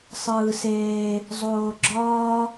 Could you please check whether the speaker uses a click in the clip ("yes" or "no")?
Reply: yes